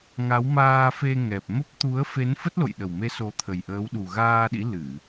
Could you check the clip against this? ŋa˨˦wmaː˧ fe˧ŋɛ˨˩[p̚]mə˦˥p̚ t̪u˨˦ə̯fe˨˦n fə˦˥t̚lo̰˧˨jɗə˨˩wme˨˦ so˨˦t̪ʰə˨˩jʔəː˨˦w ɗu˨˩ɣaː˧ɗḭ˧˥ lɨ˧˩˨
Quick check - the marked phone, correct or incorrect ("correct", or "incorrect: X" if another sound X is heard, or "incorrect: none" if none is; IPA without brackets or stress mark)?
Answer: correct